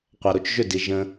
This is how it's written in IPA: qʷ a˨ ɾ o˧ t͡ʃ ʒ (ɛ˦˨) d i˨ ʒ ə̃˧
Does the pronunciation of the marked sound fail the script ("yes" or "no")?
yes